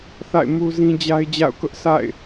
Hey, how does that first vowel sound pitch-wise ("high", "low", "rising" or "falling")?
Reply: falling